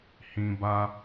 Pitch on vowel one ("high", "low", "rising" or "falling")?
low